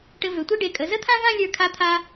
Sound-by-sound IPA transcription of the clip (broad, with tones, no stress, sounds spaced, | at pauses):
ʈ ɘ˧ v ø˩˧ tʷ i˥˧ ɖ e˧˩ kʼ ə˩˧ z ə˥˧ t̪ʰ ã˥ v ã˥˧ lʲ ə˞˧˩ kʰ a˧ t̪ʰ a˧